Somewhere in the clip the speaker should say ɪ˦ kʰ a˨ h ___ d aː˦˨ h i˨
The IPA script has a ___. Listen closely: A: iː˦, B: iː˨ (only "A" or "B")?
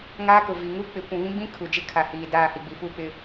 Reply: B